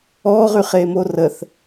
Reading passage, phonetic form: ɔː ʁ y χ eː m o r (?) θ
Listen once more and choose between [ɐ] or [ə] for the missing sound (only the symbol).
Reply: ə